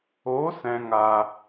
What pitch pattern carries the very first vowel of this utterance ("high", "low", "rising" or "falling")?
rising